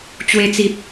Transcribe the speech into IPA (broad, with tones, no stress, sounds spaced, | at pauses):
t͡ɕ w e˧ t͡s i˨ p̚